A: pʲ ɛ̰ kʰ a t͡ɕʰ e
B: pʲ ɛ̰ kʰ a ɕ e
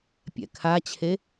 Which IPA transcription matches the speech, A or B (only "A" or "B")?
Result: A